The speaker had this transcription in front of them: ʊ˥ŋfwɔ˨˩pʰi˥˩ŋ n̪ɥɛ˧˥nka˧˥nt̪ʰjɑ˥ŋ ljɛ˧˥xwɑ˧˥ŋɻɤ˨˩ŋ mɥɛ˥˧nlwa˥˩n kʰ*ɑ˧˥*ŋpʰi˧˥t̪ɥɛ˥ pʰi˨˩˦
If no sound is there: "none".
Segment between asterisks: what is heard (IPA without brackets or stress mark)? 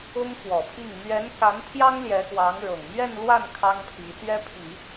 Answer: ɑ˥